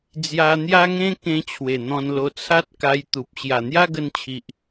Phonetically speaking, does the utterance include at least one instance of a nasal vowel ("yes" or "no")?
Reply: yes